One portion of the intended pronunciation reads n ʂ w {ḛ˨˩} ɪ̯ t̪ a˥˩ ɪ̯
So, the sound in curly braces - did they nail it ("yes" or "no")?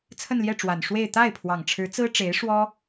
no